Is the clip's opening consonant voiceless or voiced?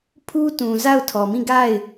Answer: voiceless